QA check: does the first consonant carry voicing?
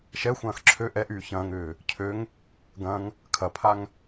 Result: no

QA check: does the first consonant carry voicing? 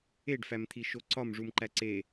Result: yes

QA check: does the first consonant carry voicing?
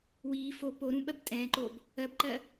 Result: yes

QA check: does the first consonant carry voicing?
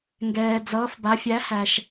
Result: yes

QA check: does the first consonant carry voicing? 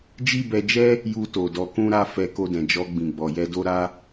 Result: yes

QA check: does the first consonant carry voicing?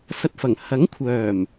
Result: no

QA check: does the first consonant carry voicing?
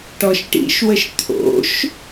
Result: no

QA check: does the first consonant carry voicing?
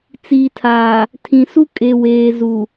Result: no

